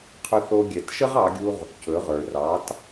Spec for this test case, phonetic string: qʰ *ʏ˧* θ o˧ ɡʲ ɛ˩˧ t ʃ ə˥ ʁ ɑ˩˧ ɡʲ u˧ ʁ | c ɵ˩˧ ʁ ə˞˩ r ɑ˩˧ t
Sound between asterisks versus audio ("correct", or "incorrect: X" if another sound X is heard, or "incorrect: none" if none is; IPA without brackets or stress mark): correct